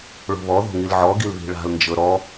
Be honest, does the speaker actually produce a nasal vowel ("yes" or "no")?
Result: no